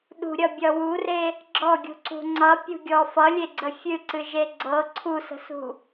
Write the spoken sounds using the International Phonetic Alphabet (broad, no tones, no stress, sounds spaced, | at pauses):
ɗ ṳ ɾʲ ʌ bʲ ʌ w u r e | ɡ͡ǁ ɔ ɡʲ ṳ ǀ ṳ ŋ͡ǀ ʌ pʲ ṳ ɡʲ ɔ f ʌ lʲ e ɡ͡ǀ ə fʲ ɨ ǀ ɨ ʒ e ɡ͡ǀ ɤ ǀʰ u s ə̤ s ṳ